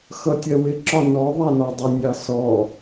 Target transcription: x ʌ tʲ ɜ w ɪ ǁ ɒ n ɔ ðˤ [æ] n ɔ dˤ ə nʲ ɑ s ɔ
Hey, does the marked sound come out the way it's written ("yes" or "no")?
yes